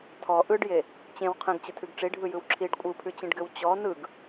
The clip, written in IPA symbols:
tʰ ɔ ʔ ɯ ɖ j e | t͡ɕ ẽ w qʰ ẽ ɡ t͡ɕ ɯ tʰ ʉ ɡ ʈ͡ʂ i ɖʱ ɯ j ɯ w ǁʰ i ɖ kʷʼ ɯ pʰ ʉ t͡ɕ ĩ ɖ ɡ ɘ w t͡ɕ ɔ n ɯ ɡ

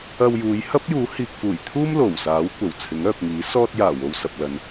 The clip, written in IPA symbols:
ɐ˧ w j uː˨˧ j h ɐ˥ p̚ j uː˨˥ h iː˨ k̚ f uː˨˩ j t̪ʰ uː˥ m l o˨˩ w s aː˨˥ w kʷ ɐ˨˩ w t͡sʰ ɪ˨˥ ŋ œː˨ p̚ ŋ iː˨˥ s ɔː˧ t̚ j aː˨˩ w o˨ w s ɐ˨ p̚ l ɐ˨˧ n

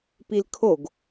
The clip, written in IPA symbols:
p i l kʰ o ɡ

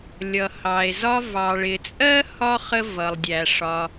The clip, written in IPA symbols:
lʲ ʌ˩ h ɑ˩ e̯ z ɒ˥ v ɑ˩ ɭ ɪ˩ t͡sʼ ɜ˥ h ɒ˥ χ ə˦ v ʌ˩ lˠ dʲ æ˩ ʂ ɒ˨

